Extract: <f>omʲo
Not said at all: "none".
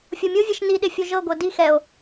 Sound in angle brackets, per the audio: fʲ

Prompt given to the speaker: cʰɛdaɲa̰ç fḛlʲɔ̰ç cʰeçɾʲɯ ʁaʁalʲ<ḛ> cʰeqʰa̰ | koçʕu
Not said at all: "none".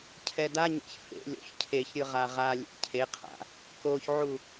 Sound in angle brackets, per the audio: ḛ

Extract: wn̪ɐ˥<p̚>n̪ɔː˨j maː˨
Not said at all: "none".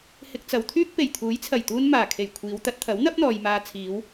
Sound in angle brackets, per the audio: p̚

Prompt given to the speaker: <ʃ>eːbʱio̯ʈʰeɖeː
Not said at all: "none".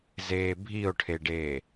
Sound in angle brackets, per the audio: z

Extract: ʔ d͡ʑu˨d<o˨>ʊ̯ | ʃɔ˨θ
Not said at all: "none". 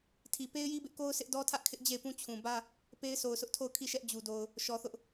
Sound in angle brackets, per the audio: o˨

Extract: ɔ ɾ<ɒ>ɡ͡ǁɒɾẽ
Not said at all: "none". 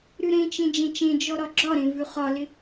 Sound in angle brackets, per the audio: ɒ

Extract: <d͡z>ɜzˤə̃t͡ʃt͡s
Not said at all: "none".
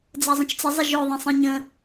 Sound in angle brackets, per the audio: d͡z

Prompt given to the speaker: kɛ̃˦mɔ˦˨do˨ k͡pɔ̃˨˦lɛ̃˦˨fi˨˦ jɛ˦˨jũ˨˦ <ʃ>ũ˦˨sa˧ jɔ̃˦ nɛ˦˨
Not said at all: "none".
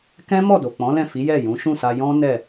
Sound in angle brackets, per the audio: ʃ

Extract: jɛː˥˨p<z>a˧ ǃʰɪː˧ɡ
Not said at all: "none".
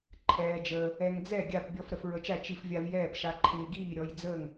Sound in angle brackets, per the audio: ʃ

